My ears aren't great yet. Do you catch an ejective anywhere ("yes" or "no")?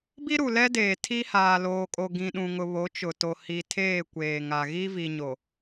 yes